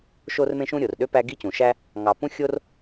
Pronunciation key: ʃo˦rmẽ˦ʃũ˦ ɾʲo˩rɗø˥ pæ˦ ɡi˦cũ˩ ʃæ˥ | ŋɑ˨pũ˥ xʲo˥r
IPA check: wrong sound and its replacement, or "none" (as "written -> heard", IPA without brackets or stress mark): none